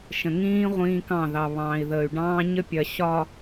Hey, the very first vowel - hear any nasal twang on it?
yes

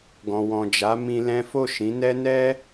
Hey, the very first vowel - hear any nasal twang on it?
yes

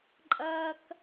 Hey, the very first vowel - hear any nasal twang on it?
no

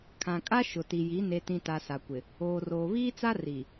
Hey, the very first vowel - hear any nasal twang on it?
yes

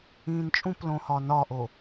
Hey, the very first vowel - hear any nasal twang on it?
yes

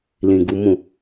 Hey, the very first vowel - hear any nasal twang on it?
yes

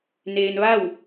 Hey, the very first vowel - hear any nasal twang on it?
no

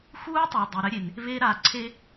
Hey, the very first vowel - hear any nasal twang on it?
no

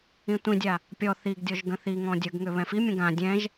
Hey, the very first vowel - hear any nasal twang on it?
yes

